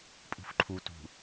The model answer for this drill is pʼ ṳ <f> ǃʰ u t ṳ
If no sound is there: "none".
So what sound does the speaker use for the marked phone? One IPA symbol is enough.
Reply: f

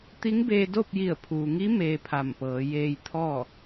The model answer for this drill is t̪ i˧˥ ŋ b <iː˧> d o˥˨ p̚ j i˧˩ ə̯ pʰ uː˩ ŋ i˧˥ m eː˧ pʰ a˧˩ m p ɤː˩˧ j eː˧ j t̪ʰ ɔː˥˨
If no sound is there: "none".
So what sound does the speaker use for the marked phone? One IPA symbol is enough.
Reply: eː˧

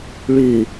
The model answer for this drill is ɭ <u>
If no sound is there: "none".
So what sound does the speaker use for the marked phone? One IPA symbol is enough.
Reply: ʉ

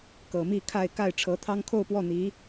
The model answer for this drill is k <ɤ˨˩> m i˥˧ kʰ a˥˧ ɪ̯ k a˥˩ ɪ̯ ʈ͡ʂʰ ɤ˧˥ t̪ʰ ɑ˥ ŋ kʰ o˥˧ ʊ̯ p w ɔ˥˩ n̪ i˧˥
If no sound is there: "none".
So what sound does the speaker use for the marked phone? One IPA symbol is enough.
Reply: ɤ˨˩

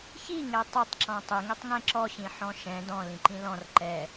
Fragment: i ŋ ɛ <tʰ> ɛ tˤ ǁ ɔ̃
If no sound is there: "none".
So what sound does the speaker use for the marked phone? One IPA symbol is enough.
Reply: tˤ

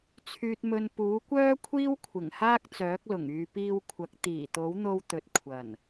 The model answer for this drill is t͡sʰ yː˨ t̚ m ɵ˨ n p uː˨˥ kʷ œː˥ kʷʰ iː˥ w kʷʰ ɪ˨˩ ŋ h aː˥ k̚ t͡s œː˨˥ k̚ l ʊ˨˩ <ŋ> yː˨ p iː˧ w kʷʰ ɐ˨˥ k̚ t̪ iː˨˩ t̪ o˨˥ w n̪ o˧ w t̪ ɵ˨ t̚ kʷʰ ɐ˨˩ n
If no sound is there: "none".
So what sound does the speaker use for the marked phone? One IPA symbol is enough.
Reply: ŋ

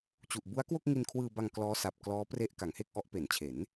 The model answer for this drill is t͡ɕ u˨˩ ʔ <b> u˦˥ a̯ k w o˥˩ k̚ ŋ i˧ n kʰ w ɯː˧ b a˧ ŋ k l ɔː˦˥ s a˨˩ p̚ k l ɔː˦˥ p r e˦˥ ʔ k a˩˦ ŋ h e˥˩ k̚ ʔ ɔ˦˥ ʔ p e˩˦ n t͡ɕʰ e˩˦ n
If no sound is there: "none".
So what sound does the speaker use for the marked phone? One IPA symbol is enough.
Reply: b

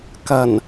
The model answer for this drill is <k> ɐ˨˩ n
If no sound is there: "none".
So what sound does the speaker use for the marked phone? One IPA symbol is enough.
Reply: k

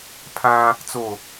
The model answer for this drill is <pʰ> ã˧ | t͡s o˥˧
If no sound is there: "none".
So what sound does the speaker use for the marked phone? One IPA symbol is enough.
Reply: pʰ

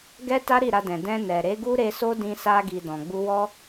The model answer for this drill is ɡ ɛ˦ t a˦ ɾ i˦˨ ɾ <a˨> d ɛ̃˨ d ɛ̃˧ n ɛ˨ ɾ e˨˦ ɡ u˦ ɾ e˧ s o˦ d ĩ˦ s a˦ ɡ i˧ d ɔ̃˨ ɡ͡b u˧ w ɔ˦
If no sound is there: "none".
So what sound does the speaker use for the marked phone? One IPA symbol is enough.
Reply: a˧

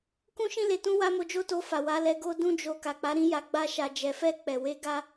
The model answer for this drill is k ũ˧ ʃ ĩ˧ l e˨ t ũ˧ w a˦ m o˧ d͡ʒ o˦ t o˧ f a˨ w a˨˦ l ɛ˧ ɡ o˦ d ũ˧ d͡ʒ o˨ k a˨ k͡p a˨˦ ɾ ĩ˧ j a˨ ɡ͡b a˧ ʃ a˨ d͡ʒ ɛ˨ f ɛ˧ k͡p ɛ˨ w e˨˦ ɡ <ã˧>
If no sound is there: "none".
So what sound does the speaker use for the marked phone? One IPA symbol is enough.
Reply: a˧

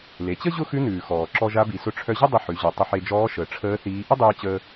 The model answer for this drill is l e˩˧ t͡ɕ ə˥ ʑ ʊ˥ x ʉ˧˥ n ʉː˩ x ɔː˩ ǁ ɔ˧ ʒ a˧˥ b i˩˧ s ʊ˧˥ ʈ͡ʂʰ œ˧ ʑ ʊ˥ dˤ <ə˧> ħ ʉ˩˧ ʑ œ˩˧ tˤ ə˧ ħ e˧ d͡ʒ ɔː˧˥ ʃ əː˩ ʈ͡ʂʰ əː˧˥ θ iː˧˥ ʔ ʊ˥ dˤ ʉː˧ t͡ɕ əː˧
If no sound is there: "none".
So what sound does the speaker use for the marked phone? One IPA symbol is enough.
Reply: ə˧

